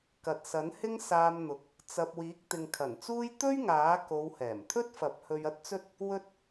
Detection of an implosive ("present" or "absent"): absent